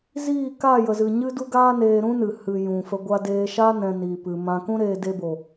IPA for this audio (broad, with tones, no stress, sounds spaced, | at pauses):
z iː˦˨ k a˦˨ j ə˨ z ɨ˨ ɲ ɨ˦ d u˦ ɡ aː˦ n eː˧ ɾ ũ˦ n ɨ˨ h ɨ˨ j ũ˨ f ə˧ ɡʷ a˧ d eː˧ ʃ a˦ n ɛ̃˧ n iː˨ p ɨ˨ m ã˧ k ũ˦ ɾ eː˧ d e˧ b o˨